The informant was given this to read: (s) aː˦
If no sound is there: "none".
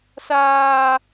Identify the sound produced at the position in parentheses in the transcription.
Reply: s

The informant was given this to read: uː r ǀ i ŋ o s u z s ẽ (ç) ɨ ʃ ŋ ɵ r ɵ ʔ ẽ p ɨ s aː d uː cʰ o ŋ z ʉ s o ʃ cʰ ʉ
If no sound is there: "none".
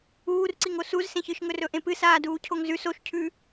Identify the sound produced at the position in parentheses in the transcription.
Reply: ç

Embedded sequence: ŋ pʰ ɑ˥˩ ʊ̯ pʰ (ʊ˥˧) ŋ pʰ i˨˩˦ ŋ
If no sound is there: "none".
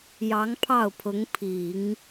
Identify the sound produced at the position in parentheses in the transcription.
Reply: ʊ˧˥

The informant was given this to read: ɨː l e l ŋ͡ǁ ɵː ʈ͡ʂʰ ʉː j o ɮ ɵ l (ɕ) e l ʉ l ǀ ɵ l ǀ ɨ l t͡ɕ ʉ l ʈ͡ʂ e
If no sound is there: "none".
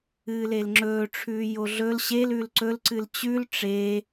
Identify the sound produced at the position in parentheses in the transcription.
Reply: ɕ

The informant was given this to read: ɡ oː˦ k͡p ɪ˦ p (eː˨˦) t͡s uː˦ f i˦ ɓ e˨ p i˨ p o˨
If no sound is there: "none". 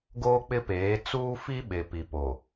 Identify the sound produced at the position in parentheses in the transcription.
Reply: eː˨˦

